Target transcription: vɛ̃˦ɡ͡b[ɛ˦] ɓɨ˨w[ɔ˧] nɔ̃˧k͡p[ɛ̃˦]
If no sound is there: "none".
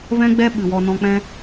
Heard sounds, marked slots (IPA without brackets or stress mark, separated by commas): ɛ˦, ɔ˧, ɛ̃˦